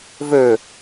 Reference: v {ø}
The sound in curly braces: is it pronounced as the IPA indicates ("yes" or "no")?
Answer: yes